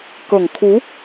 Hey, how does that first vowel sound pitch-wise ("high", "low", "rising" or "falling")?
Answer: low